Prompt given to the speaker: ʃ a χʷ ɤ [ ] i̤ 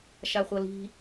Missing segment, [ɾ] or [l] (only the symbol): l